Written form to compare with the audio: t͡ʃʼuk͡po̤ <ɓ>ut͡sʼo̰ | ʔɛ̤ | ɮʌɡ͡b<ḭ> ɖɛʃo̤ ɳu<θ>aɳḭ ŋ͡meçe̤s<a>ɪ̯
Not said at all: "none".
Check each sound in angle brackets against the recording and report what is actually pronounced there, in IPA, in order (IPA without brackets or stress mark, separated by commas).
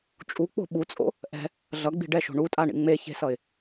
ɓ, i̤, tʼ, ʌ